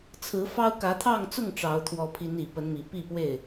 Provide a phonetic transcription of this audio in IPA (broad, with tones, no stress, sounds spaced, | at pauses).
t͡sʰ ɹ̩˨˦ f ɑ˦ ʊ̯ k ä˨˦ t̪ʰ ɑ˥˨ ŋ t͡s ʊ˥˨ ŋ ʈ͡ʂ ɑ˨˦ ʊ̯ t̪ʰ w ɔ˨˦ pʰ i˨˦ n i˨˩ p ə˨˦ n m i˨˩ p i˥˨ p w e˥˨ ɪ̯